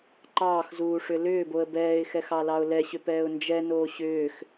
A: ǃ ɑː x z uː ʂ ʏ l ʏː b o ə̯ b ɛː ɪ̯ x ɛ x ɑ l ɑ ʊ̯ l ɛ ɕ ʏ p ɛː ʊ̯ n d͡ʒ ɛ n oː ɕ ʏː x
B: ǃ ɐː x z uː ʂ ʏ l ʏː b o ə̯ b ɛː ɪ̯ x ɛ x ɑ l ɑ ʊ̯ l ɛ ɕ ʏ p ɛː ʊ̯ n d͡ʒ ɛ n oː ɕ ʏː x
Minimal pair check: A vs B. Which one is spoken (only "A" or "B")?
A